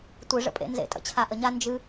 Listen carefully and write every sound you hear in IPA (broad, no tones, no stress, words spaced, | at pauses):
tʷɨ ʐə̰pʼḛnzḛtʼə̰ t͡ɕʰaʔəɲa nd͡ʒɨ